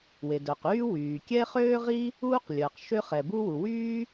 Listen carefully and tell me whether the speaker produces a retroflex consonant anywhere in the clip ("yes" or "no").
no